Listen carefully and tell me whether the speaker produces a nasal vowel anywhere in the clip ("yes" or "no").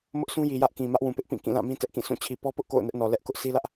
yes